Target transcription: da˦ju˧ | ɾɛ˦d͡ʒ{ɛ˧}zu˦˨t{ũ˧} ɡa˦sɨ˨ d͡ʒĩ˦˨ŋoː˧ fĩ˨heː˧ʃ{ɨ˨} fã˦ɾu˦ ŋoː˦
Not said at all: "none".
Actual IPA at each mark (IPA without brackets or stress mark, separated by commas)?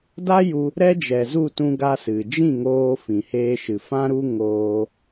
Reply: ɛ˨, ũ˧, ɨ˨